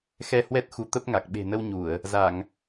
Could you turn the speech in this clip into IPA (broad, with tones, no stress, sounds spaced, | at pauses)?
x ɛ˧ h w ɛ˦˥ t̚ x u˨˦ t̪ ə˦˥ p̚ ŋ a˨˩ k̚ ɓ e̤˨˩ n ə˧ w ɲ u˧˩˨ ə̯ | z a˧˩˨ ŋ